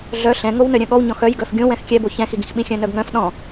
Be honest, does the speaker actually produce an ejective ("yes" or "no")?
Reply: no